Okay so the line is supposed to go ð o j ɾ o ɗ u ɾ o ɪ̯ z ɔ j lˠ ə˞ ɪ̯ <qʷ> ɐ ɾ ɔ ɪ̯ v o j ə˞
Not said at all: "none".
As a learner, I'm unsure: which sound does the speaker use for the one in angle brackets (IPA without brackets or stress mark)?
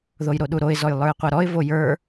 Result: qʷ